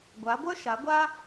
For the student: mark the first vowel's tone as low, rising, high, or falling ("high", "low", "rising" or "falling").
rising